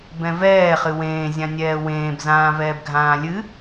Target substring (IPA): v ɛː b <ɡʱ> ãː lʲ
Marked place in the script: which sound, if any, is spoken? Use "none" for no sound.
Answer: ɡʱ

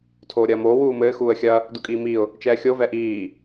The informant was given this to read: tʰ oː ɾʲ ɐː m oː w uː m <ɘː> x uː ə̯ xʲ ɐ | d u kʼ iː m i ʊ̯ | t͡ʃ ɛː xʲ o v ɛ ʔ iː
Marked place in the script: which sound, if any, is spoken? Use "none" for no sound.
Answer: ɘː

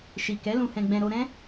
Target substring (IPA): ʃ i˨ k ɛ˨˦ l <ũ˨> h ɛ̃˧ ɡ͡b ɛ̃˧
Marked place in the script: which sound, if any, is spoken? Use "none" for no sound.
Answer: ũ˧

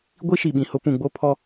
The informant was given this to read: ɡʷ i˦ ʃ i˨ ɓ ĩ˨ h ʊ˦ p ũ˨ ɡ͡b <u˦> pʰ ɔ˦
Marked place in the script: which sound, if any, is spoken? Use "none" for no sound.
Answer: o˦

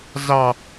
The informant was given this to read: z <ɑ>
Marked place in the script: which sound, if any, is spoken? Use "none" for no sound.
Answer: ɑ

